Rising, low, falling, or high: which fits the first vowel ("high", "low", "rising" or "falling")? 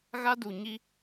high